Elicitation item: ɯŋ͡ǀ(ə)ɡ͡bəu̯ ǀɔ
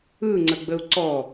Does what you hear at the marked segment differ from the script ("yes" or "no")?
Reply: no